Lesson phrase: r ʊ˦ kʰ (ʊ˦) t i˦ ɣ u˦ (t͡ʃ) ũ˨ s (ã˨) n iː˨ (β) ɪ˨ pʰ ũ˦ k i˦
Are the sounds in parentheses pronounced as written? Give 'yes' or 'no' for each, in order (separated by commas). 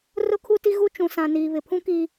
no, yes, yes, yes